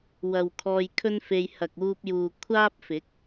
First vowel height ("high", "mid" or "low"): low